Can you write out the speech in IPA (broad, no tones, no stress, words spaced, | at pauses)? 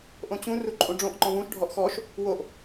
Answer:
ʔõt͡ɕũ ruǃʼũɖ͡ʐõʔ ŋ͡ǃɔ̃vũʃ ɖʱɔʔxɔʃ | woʔ